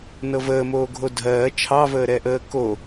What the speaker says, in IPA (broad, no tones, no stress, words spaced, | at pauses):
nɤvəːmoː ɡʱodʱɜː t͡ʃʰɑvəːɾɛʔəː ko